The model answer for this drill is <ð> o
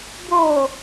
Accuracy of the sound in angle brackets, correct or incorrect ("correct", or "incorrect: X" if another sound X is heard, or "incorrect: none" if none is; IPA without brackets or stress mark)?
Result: incorrect: b